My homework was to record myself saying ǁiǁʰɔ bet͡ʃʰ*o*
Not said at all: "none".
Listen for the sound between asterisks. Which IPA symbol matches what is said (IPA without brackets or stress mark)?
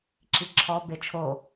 o